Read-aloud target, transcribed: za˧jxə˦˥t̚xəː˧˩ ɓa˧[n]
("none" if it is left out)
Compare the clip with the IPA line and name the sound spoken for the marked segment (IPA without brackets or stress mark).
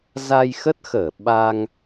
ŋ